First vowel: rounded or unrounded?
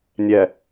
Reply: unrounded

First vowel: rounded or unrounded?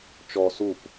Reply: rounded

